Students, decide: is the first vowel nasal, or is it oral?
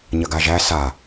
oral